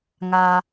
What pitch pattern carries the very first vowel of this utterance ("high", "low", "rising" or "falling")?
low